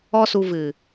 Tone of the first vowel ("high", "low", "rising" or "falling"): high